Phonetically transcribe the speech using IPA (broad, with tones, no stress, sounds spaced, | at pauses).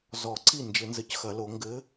z ɔ˨˩˦ ǀ i˥˩ n d͡ʒ ɘ˨˩˦ n z ɘ˨ c x ɐ˨˩˦ l o˨˩˦ ŋ ɡ ɘ˨˦